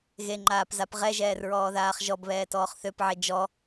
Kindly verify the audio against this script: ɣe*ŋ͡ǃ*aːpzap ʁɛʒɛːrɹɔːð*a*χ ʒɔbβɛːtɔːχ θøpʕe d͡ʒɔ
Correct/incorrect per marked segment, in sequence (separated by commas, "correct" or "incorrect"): correct, incorrect